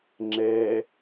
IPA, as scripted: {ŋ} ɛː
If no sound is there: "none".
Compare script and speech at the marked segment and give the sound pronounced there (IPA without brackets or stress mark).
ŋ͡ǁ